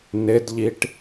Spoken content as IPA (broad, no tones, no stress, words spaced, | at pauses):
nɪdʎiʈ